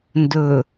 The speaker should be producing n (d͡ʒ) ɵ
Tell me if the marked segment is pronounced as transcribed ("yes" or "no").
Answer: no